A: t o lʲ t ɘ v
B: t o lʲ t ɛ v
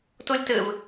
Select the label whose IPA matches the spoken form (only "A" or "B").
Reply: A